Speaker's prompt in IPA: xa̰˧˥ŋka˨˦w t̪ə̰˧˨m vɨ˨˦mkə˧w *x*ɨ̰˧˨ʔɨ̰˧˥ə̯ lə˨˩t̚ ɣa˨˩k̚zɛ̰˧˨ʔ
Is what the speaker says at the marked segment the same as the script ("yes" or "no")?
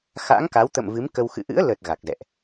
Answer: yes